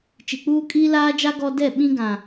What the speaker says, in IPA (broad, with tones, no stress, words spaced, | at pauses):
t͡ʃi˨k͡puː˦ kʼiː˦laː˦d͡ʒa˦ ɡɔ˦ dɛ˦˨ ɓĩ˦ɡã˨